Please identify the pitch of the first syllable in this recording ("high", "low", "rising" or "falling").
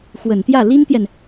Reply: low